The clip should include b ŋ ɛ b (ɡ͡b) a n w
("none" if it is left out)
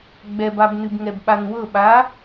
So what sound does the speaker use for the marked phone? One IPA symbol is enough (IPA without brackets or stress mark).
ɓ